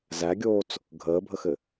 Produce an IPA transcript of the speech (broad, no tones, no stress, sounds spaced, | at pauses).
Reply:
z æ ɡʲ oː t͡s | ɡʱ əː bʱ ə x ɘ